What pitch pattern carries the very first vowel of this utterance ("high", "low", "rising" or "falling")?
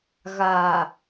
low